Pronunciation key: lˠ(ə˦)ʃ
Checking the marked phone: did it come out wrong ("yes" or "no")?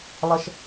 no